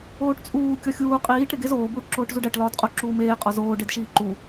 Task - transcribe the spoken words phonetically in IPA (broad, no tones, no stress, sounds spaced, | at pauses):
oː ʈ t͡sʼ uː kʲ ɒ xʲ uː qʼ iː ʈ ɾ e ɡ e z oː b uː ʈ ǁ oː ʈ z u ɖ æ ʈ l ɒː d qʼ o ǁ uː m eː qʼ ɒ z oː ɖ e d ʃ iː ǃ u